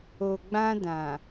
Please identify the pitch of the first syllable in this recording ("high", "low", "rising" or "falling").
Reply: low